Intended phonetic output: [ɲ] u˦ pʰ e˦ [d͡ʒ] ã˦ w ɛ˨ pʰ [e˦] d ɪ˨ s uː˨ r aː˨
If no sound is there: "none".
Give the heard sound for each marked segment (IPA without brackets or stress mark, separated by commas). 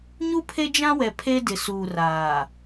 ɲ, d͡ʒ, e˦